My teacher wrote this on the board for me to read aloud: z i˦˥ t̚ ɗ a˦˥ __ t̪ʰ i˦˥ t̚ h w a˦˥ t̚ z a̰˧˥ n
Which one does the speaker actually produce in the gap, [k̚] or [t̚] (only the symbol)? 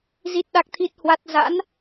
k̚